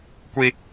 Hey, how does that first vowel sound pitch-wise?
high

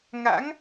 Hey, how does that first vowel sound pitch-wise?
rising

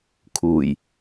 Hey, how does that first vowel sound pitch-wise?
low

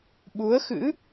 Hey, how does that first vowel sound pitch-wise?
rising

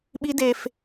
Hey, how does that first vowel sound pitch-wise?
high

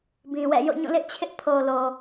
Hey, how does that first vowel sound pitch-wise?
low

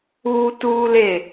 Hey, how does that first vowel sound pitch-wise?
high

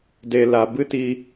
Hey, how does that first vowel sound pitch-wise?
low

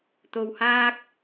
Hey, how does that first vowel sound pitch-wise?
low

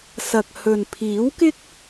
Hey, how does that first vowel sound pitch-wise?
low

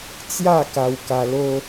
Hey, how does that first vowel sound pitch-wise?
falling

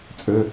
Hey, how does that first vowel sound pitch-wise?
low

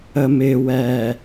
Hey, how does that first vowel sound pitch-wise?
low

